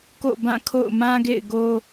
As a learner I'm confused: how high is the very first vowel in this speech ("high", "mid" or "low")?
mid